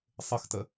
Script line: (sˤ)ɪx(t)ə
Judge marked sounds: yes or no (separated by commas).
yes, yes